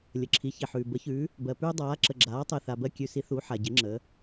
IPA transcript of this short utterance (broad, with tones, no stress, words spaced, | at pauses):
lʲə˩ǁʰi˩˧çi˩ħʉː˩ bə˩˧çʉ˩˧ | bɜ˩pʉː˧ dˤaː˩˧ ǁə˩ɡ͡ǁaː˩˧ tˤe˩θa˩ bɜ˧kʲʉ˩˧si˩˧ θu˩˧ ħa˩ɟɪ˩˧ ŋ͡ǁə˩˧